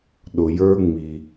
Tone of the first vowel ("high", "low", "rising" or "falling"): low